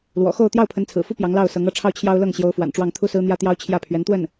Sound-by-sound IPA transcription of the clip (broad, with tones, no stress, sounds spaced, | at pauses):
l w ɔ̰˨˩ x o˥˧ ʊ̯ t̪ j ɑ˥˩ ʊ̯ pʰ ə˧˥ n t͡sʰ ɹ̩˨˩ f u˥ p j ɑ˧˥ ŋ l ɑ˥˩ ʊ̯ s ɤ˧˥ ŋ ɤ˧˥ ʈ͡ʂʰ ɑ˥˩ ʊ̯ t͡ɕʰ j ɑ˥ ʊ̯ l ɤ˥˩ ŋ ɕ j o˧˥ ʊ̯ f w a̰˨˩ n ʈ͡ʂ w ɑ˥˩ ŋ t̪ʰ u˥ s ɹ̩˥ n̪ j ä˥ t̪ j ɑ˥ ʊ̯ t͡ɕʰ j ä˥˩ pʰ ɥ ɛ˧˥ n t̪ w ə˥˩ n